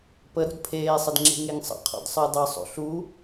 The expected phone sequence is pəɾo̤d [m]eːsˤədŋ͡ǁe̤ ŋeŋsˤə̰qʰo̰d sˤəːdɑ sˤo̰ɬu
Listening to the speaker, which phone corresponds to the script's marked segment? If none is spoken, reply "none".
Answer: pʰ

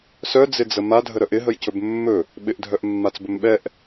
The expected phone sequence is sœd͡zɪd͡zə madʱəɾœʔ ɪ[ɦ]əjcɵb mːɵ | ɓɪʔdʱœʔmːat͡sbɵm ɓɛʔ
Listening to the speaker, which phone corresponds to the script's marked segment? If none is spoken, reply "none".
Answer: ɦ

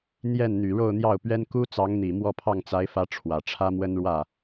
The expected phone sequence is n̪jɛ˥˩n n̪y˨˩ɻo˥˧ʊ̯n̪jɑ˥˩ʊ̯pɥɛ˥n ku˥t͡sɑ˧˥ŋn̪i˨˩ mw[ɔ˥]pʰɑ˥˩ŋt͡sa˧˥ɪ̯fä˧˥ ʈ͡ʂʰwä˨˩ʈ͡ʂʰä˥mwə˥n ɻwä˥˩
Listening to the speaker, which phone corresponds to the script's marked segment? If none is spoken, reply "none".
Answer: ɔ˥˧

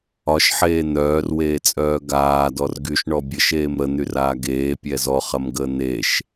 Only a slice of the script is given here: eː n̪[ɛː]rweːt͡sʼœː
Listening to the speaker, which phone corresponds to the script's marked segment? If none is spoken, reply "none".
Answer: œː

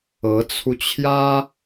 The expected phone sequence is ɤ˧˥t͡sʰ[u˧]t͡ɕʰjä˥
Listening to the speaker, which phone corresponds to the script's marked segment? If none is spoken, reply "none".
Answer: u˧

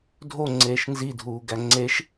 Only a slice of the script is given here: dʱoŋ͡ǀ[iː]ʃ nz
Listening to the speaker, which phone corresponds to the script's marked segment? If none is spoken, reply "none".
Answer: eː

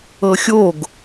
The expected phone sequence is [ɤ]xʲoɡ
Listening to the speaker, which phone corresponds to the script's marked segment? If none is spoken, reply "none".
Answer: ɤ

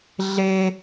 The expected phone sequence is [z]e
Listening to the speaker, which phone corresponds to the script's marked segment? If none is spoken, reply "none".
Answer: ɮ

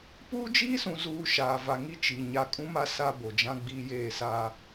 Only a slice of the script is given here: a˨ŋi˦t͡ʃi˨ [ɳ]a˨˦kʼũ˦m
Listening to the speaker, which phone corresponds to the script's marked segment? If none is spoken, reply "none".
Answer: ɲ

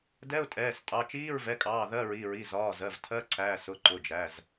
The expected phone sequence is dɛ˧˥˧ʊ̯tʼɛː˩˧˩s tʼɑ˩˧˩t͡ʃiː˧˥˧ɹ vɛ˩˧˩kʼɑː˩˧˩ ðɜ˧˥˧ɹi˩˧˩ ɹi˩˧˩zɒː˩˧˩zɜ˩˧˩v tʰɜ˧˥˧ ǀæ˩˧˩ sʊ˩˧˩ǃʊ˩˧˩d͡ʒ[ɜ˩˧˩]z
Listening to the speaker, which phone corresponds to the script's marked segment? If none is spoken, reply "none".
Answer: æ˩˧˩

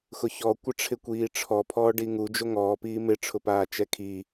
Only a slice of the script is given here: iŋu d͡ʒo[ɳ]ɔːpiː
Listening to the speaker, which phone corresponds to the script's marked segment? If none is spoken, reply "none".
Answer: ŋ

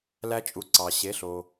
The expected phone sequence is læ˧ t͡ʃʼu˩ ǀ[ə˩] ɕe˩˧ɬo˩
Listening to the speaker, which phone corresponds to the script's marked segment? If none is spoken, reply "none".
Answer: ɑ˩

